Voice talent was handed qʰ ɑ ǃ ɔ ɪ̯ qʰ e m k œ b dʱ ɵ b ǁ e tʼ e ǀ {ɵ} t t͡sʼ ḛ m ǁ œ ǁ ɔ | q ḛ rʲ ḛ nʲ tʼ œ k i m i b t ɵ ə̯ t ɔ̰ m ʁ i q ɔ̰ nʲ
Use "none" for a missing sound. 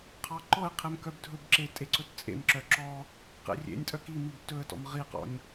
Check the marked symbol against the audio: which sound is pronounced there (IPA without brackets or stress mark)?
ɵ